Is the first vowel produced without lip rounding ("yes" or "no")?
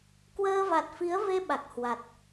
yes